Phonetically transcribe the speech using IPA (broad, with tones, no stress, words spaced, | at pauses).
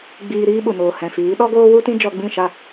ɡ͡biː˧ɾiː˦ɓu˨noː˨ hɛ̃˨fiː˨˦ ɗɔ˦ɡoː˦wu˦ tĩ˦d͡ʒɔ˧ɡ͡bĩ˦˨ʃa˦˨